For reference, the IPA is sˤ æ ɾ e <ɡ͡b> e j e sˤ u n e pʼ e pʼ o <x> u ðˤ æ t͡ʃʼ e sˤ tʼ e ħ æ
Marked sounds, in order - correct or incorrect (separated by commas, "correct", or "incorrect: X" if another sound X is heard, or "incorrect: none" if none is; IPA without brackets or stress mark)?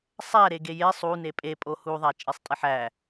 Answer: incorrect: ɡ, incorrect: h